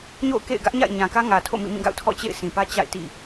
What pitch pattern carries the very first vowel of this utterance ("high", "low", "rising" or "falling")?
falling